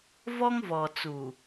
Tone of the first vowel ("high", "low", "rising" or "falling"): high